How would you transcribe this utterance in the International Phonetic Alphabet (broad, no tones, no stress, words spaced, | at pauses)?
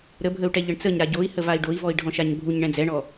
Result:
ɾəbʱəu̯ʈɛ ʎəɳt͡səɲɾa ɟoi̯ həvai̯ɖoi̯vɔi̯ ɖʱɔ̃ʃaɲbʱuɲ ɳɛ̃d͡zɛɳɔ